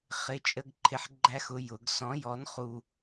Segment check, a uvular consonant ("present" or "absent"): present